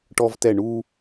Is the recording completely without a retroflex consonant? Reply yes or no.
no